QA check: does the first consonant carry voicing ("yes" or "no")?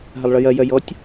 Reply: yes